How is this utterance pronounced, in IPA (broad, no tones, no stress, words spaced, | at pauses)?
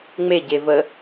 ŋ͡meɟevə